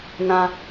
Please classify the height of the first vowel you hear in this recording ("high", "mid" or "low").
low